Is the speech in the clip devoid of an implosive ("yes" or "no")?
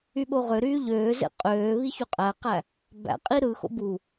no